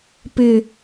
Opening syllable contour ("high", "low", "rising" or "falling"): low